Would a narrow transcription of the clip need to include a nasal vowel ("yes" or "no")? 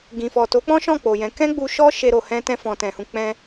yes